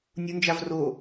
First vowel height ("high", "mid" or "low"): high